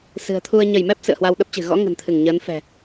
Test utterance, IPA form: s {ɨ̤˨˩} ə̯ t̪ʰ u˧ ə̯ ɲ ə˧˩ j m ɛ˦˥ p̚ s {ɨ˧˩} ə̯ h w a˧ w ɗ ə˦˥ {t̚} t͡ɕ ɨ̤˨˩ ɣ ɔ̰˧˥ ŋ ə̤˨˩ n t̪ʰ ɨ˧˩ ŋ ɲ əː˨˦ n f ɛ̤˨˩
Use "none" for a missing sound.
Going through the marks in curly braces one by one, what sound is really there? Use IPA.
ɨ̤˨˩, ɨ̰˧˨, p̚

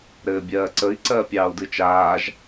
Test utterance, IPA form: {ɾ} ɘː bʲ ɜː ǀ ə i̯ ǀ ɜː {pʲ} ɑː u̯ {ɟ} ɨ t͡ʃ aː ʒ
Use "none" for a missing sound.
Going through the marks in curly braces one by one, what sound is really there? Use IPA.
ɾ, pʲ, d

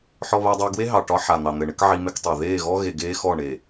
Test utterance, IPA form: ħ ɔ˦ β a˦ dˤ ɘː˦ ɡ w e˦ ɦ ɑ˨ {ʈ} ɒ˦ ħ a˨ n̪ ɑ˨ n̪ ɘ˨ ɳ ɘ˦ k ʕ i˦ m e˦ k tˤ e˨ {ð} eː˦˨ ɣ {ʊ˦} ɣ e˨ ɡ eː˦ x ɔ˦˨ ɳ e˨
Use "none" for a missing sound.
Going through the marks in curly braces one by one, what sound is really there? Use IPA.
ʈ, ð, ɔ˦

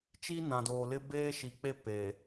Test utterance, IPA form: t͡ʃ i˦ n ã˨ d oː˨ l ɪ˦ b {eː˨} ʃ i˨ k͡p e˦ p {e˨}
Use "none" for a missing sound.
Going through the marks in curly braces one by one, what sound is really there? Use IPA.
eː˦, e˨

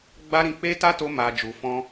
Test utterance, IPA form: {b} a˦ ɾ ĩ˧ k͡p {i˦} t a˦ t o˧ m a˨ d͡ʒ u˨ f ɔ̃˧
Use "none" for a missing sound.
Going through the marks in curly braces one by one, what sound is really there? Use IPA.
ɡ͡b, e˦

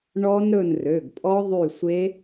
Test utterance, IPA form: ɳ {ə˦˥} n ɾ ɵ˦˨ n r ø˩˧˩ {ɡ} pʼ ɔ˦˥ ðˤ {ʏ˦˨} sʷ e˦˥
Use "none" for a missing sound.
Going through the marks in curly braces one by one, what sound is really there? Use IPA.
ɔ˦˥, ɡ, y˦˨

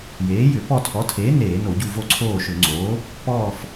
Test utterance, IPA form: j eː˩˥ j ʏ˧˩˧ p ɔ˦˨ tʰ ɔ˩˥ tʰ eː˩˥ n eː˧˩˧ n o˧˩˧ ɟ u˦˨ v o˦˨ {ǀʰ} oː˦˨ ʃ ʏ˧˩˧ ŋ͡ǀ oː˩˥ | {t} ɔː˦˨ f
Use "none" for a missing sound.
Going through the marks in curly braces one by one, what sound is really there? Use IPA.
ǀʰ, p

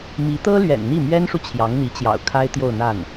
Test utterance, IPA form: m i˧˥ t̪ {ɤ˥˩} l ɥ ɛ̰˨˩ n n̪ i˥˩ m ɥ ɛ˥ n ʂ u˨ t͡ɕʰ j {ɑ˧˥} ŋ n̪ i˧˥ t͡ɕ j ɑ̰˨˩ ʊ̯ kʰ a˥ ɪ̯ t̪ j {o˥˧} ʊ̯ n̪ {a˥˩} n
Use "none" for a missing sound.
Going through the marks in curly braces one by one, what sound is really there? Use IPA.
ɤ˥, ɑ˧˥, o˥˧, a˥˩

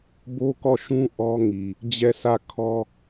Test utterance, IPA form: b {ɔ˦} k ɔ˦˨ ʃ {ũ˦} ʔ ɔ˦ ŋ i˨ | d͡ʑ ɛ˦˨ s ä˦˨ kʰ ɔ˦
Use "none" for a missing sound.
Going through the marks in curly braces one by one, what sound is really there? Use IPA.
o˦, ũ˦

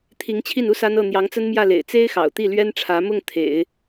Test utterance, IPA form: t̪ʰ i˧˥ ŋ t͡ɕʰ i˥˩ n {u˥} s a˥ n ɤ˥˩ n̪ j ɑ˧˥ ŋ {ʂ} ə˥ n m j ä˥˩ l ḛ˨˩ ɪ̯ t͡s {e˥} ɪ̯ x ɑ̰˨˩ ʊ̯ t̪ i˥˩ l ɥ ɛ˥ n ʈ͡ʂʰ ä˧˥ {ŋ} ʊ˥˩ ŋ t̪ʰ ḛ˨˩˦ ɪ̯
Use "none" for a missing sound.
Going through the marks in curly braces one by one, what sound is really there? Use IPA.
u˥, t͡s, e˥, m

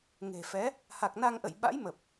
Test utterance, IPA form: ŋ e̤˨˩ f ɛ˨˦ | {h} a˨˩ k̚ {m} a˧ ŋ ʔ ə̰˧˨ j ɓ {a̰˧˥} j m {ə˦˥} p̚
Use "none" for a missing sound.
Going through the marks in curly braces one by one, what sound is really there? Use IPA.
h, n, a̰˧˥, ə˨˩

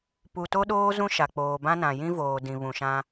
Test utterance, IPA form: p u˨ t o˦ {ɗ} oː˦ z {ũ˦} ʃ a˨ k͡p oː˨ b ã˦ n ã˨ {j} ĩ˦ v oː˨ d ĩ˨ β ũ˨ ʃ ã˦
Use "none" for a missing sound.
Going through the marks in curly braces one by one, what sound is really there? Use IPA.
ɗ, ũ˦, j

